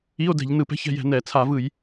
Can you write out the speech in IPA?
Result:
i˧˥˧o̯dɛ̤˧˩˧ʎ nɯ˧˩˧pɛ̤˧˥˧ç ɛ̤˥˨jɛ̤˧˩˧nɛ˧˩˧ t͡sʰa˧˩˧vɯ˧˩˧j

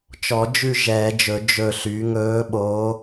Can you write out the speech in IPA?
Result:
t͡ʃɔ˨˩˦d͡ʒʉ˦˨ ʒɛː˨˩˦d͡ʒɵ˨˩˦ d͡ʒɵ˦˨ ɬy˩˥ŋɵː˧˥ɓoː˧˥

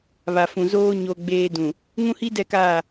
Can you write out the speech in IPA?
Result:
βa˨fũ˨ zoː˦ ɲo˦ɡ͡beː˦ dũ˨ | ŋũ˦hi˦dɛ˦˨kaː˦˨

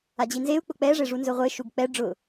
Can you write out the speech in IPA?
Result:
ad͡ʑinzeu̯k͡pʊ k͡pɛʐe ʐunzʊʁʷeʃuɡ k͡pɛ ɖ͡ʐʊ

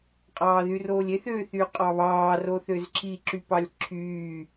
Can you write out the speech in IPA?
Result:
qʼɑːðyroːlʲeθ ø θyqʼɑβɑː roθøzǁi ǁypɑlʲǁʰyː

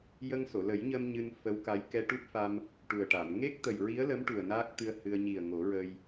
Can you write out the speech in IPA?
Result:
jə˧ŋso˨˩˨lə˨˩˦jɲə˧m ɲɨ˧nfə˧˥wka˧˥j kɛ˧ʈu˦˥p̚fa˧m | ʈu˨˩ə̯ʈa˨˩˨m ŋe˦˥k̚t̪ə˨˩j ɹi˧˥ə̯lə˧˥m ʈu˨˩ə̯naː˦˥k̚t̪ɨ˧ə̯ hɨ˧ə̯ ɲi˨˩ə̯ ŋo˨˩˦ɹə˧j

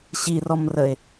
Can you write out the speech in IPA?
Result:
ɕirɔmrəe̯

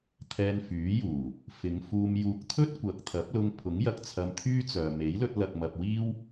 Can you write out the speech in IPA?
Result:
t̪ʰɛː˧nfyː˨˥juː˨˩ | fɪ˨˧ŋfuː˧mjuː˧k̚ t̪ʰɵ˥t̚kʷɐ˨k̚t̪ʰɐ˨˥p̚lʊ˧ŋ pʰʊ˨˥ŋ jɐ˧k̚t͡sʰɐ˧mt̪ʰyː˥t͡sœː˨ me˨˥jlɵ˧t̚lɐ˨k̚mɐ˨p̚ wiː˥w

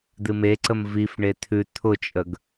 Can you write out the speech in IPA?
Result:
d̪ɨmeǀəm vifɳe t̪ʰʉ t̪ʰʊt͡ʃʼəɡ

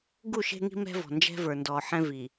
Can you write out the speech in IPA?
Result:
ɡu˦˨ʃe̤˦ŋi̤˦ mɛ̤˦vɔ̤˨nd͡ʒɛ̤˦ və˞˨ndɔ˨ ħɛ̃˦vi˨

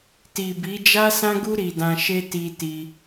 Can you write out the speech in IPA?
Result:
ti˨bi˨˦ d͡ʒa˦sã˦ɡu˦ ɾi˧dã˧ʃe˦ ti˧ti˧

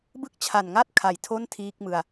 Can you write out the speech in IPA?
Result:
bɯ˥˩k̚ t͡ɕʰa˨˩nŋa˥˩t̚kʰa˩˦j tʰo˥˩ntʰiː˦˥k̚ mɯ˧a̯

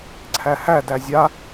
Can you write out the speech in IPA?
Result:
ǀʰæhædæ zʲa

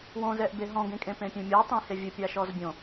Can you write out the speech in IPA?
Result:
wõzɛʔbe ɦɔ̃ɡẽkʼẽ pẽpʲẽmʲɔ tˤĩhevʲɘ pʲaʃɔzbʲõ

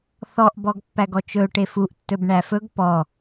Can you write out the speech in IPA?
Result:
θɔʔbɔɡpːæɡ ɔt͡ʃɵʊ̯ ʈefuʔ tːɵbɳæfɵɡ pɔ

